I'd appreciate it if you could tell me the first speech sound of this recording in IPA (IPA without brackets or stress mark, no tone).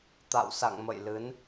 t̪